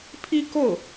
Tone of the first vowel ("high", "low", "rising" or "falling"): high